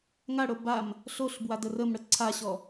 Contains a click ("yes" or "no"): yes